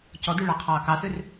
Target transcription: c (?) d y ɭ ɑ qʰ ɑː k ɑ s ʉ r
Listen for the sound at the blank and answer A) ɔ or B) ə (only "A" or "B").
A